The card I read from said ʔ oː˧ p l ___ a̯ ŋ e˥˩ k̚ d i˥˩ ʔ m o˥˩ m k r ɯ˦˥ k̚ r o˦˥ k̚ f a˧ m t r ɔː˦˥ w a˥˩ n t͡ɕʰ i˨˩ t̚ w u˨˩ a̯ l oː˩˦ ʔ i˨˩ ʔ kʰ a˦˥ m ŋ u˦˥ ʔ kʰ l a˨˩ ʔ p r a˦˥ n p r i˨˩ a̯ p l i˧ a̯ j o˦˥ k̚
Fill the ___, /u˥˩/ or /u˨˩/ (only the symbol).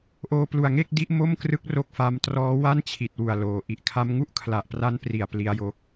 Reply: u˨˩